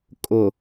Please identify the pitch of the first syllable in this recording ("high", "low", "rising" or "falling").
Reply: low